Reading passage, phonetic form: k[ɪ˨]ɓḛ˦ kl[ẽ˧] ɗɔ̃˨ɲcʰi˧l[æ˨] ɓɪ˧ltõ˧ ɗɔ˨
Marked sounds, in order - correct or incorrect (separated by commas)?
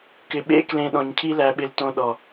correct, correct, correct